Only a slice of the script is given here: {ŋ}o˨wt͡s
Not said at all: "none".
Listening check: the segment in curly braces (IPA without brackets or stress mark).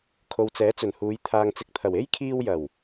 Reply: kʰ